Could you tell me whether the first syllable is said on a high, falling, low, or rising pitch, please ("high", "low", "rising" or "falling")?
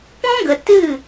high